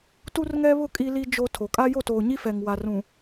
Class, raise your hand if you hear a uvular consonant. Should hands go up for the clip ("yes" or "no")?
no